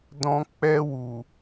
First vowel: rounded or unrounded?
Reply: rounded